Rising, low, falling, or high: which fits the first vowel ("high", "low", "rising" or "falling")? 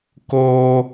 high